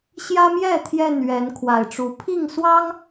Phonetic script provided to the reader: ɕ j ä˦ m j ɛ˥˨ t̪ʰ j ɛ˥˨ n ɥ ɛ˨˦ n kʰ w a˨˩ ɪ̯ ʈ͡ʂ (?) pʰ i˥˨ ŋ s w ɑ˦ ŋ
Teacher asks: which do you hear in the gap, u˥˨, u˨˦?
u˨˦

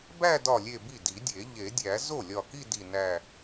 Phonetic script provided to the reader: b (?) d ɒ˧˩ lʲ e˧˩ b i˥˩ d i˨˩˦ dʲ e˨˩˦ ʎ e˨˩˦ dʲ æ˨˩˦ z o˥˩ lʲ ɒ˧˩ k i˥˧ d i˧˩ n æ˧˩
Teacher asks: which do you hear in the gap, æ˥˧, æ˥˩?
æ˥˧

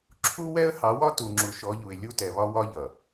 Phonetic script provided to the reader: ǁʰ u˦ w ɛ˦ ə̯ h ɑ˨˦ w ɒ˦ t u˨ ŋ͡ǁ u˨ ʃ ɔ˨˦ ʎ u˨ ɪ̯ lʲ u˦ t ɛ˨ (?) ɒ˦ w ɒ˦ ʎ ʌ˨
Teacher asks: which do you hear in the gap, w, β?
β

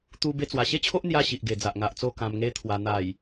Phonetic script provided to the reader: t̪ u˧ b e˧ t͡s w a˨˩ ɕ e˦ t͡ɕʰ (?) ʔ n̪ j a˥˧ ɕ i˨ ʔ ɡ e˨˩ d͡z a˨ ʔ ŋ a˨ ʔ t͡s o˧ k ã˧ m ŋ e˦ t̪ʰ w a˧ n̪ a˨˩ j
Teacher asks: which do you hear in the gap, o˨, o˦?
o˦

